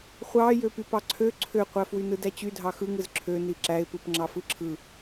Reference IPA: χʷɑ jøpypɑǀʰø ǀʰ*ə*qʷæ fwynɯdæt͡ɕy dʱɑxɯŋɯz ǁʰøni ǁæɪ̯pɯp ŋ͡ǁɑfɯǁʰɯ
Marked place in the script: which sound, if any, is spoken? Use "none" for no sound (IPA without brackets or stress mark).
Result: ø